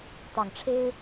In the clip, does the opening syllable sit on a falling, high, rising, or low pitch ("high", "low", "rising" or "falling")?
low